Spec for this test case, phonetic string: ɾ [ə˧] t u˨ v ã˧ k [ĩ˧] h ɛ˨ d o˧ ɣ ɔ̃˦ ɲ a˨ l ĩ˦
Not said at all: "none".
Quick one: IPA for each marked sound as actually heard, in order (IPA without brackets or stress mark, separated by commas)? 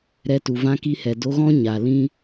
ɛ˧, i˧